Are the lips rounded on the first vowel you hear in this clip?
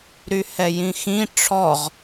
yes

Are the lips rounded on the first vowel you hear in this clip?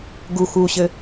yes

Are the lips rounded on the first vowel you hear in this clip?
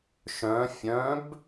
yes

